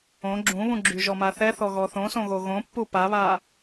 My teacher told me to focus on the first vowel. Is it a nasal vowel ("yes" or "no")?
yes